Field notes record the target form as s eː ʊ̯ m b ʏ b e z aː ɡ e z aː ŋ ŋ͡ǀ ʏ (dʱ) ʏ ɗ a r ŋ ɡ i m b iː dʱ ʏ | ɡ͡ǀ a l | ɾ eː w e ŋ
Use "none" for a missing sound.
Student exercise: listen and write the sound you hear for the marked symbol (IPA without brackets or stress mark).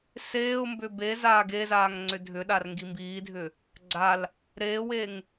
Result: dʱ